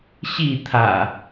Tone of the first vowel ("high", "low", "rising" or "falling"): falling